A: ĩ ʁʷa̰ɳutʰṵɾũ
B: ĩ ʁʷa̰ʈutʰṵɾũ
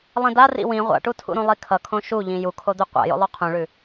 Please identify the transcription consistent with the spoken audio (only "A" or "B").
B